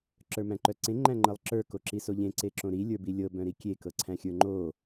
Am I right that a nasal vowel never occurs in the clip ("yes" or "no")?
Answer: no